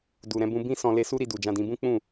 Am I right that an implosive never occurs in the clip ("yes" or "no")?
yes